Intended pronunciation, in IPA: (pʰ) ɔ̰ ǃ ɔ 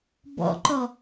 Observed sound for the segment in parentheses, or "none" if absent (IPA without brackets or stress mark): b